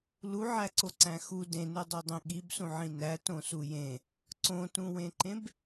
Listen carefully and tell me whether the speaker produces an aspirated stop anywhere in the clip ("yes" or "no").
no